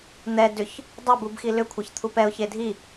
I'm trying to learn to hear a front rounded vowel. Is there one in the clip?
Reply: yes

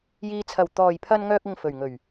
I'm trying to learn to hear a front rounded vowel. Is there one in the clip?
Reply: yes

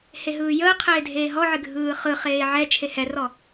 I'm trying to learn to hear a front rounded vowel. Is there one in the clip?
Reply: no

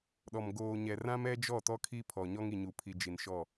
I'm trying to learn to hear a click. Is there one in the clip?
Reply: no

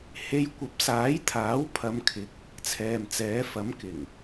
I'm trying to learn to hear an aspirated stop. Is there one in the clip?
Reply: yes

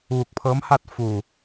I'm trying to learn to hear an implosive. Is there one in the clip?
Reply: no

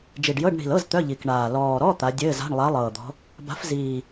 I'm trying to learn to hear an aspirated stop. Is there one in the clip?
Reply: no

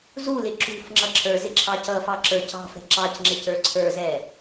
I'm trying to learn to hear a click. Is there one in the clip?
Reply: yes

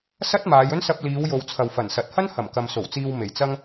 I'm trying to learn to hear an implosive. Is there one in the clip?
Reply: no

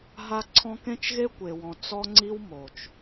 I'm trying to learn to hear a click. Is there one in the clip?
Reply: yes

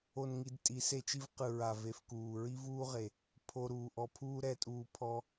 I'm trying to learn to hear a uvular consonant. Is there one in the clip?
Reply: yes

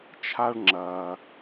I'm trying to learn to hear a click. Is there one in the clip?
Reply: yes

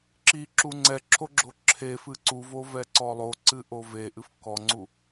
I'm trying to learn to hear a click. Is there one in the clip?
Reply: yes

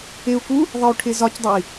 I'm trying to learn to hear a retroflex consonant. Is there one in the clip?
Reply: yes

